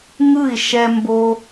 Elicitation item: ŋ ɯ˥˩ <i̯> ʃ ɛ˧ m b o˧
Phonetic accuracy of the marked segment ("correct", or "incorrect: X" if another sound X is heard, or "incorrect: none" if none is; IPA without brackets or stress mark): correct